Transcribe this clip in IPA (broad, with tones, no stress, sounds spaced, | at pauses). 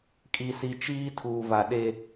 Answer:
kʼ i˨ s i˨ t͡ʃ iː˦ tʰ uː˨ v a˨ ɗ e˦